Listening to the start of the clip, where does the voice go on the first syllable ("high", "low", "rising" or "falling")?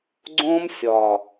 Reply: high